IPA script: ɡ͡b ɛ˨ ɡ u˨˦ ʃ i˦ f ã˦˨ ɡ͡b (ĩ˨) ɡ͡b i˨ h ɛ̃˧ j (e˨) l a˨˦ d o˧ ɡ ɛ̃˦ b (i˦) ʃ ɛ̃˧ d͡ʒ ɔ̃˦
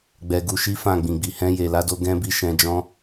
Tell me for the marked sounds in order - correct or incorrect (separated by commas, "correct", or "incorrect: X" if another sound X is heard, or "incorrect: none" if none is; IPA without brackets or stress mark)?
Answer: correct, correct, incorrect: i˦˨